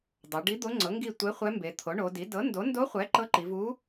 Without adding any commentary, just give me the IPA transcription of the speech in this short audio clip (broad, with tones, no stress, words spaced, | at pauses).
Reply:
dˤo˩˧ɖi˧˥d̪o˧˥ ŋ͡ǀɤ˩˥ŋɡi˦˨ tʷe˧˥χʷɛ˧˥mbe˩˧ t̪ʰo˩˥ɳo˩˧di˩˥ dɤ˩˥ndo˩˥ndo˧˥χʷɛ˩˥ ǃɤ˧˥ǃi˩˧vu˧˥